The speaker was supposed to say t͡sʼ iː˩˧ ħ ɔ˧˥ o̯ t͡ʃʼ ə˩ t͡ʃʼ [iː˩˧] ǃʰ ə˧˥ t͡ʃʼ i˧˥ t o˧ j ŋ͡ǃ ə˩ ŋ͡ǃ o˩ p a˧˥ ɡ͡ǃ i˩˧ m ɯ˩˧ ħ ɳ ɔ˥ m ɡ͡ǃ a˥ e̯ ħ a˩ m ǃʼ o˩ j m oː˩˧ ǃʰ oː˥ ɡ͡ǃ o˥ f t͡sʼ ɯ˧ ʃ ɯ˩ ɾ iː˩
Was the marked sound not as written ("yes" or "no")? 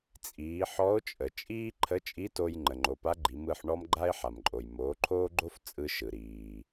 yes